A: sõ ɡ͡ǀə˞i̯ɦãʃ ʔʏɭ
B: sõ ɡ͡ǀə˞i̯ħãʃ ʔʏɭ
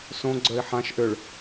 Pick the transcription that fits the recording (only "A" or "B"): B